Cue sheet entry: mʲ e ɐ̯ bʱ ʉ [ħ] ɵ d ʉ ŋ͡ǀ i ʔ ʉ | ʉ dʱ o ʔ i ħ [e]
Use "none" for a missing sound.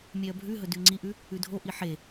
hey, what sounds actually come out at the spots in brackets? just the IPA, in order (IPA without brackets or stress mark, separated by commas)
ɦ, e